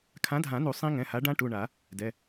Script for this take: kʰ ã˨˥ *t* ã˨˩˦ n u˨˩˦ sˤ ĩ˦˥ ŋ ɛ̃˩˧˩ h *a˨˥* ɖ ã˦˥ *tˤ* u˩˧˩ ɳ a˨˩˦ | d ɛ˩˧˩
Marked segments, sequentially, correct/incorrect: incorrect, correct, incorrect

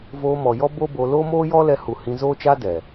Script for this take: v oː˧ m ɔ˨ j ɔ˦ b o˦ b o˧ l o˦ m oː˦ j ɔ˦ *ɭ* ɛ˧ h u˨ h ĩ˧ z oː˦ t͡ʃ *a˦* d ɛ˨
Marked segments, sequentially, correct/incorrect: incorrect, correct

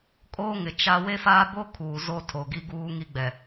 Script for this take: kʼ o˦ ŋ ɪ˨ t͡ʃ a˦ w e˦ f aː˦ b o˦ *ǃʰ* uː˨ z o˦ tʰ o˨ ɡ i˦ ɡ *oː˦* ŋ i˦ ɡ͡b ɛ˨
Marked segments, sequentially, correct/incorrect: incorrect, incorrect

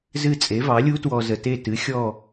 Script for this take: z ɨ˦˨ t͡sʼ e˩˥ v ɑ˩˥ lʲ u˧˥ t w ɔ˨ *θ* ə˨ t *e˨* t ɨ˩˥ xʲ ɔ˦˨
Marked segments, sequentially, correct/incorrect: incorrect, incorrect

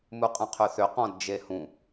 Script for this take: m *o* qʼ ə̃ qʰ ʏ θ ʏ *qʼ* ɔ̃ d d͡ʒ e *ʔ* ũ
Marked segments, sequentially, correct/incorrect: incorrect, incorrect, incorrect

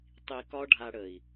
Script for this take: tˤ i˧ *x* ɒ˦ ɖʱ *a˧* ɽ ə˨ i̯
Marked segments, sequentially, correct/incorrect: incorrect, correct

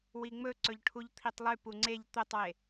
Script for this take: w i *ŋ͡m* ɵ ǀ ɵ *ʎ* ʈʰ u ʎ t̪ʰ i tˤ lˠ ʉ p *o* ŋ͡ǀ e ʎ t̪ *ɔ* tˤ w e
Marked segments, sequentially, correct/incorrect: correct, correct, incorrect, incorrect

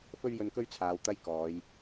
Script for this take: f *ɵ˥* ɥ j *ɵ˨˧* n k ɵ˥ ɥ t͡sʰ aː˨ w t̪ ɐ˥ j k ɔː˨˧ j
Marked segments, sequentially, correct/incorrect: correct, incorrect

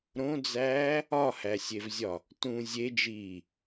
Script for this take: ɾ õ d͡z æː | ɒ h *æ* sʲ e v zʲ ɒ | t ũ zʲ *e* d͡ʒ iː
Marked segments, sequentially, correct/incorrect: correct, correct

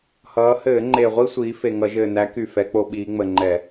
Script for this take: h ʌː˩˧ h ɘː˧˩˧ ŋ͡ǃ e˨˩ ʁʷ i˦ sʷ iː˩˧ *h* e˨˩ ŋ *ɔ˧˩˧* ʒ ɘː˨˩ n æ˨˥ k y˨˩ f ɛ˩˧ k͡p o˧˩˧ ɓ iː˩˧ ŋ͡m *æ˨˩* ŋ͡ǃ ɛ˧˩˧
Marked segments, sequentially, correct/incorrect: incorrect, incorrect, incorrect

